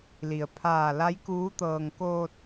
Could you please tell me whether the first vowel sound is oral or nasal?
oral